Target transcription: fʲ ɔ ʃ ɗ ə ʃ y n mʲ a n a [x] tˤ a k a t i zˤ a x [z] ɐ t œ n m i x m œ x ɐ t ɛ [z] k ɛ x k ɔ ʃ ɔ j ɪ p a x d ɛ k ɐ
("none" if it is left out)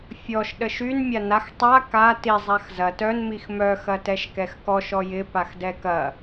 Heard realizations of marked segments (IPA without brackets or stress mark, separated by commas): x, z, ʃ